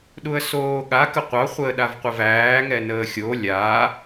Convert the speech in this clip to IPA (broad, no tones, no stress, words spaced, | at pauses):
ɗuə̯soːɠa kəqʷɑ χʷəːɗavqʷəvæː ŋɛnəːxʲo lʲa